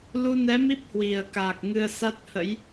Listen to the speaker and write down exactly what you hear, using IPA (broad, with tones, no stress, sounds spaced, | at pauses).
l u˧ n ɛ˨˦ m i˦˥ p̚ h w i˨˩ ə̯ k aː˨˩ k̚ ŋ ɨ˧ ə̯ s a˦˥ t̚ h ə̰˧˥ j